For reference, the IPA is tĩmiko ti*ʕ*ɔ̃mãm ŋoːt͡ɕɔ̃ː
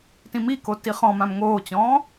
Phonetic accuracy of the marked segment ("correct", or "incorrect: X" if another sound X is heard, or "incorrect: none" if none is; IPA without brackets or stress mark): incorrect: χ